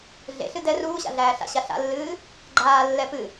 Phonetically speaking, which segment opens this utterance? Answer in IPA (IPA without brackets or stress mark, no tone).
ɮ